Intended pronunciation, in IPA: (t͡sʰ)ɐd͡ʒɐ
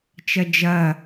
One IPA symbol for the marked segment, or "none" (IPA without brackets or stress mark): t͡ʃ